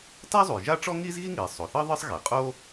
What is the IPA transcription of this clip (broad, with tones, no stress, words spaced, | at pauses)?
ta˥ zˤu˩jʒa˥ʈ͡ʂɔ˥ ŋiː˥zɣi˥ŋiː˩ sˤo˩θɤ˥ ðˤɯ˥sˤɣe˩ qʼo˥